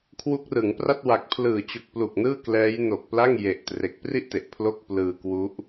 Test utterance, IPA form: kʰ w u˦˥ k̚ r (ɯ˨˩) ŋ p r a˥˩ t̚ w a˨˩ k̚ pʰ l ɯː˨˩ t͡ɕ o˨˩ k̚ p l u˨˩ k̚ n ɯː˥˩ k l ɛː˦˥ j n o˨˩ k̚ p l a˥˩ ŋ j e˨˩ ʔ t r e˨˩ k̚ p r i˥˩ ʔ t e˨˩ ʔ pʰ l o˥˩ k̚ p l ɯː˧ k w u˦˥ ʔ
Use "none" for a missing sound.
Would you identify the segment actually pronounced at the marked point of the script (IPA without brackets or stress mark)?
ɯ˩˦